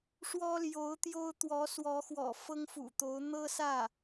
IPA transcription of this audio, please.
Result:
ʂwɔ˥ljo˧˥ʊ̯t̪jo˥ʊ̯ t̪wɔ˧˥swɔ˧˥xwɔ̰˨˩ fɤ˥ŋfṵ˨˩t̪o˧˥ʊ̯ n̪ɤ˥sä˥˩

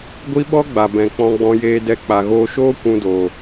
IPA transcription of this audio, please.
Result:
ɡʷi˦ɓɔ˦ɡ͡ba˨bɛ̃˨ k͡pɔ̃˧ɡ͡bɔ̃˧jeː˧ dɛ˧ k͡pa˨ɣoː˧ʃoː˦ kʷũ˧doː˨

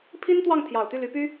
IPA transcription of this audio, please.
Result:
pʰi˥nt̪wɑ˥˩ŋ t̪ʰjɑ˨˩ʊ̯t̪y˥˩ly˧˥ py˥

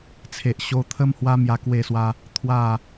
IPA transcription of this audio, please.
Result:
t͡sʰe˨ʔɕo˧ t̪ʰə˦mhwa˦mja˧ kwe˥˧swa˦ | t̪ʰwa˥˧

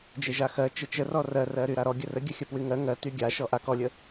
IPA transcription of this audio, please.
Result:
d͡ʒeʒaxɜ t͡ʃət͡ʃərɔ rɜrɜɾy ɾaɾɔ ɡʲərə ɡʲəxʲəpwyŋɜ ŋɜty ɡʲaʃɔ ʔa kɔlʲə

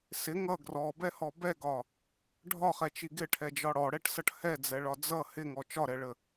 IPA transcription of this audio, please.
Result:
sɪ ŋʌ ɡrɔbɛhɔ bɛɡɒ | ɖʱɒχɛt͡ʃi ɡɪʈʰɛd͡ʒɒ ɽɔɽɛʈsʌʈ hɛd͡zɛɭɒ d͡zʌ hɪŋɔ t͡ʃɒɾɛɭə

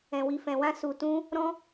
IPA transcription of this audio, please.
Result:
ɛ̃˨wi˨ fɛ̃˨wã˧ su˨tũ˧ | ɾɔ̃˦

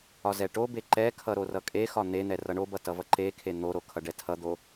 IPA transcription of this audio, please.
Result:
ɒzɛʈobe ǃɛkʰʌ ɾorʌkʼexɒ n̪en̪ɛ rʌɳobʌ tʌvʌǃekʰe n̪oɾo kʰʌɖɛtʰʌd̪o

